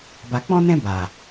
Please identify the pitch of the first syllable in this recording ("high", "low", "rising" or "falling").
low